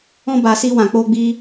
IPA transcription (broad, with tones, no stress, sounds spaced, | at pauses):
ɔ̃˦ b a˧ s i˧ w ã˨ k͡p o˧ ɡ͡b i˧